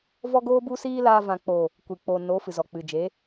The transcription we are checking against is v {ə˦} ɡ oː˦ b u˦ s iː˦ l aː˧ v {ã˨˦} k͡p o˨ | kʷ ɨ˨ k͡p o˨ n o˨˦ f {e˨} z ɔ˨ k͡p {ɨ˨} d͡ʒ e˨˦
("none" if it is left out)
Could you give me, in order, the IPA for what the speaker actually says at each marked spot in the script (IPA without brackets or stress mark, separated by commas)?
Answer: ɔ˦, ã˨, ɨ˨, ɨ˨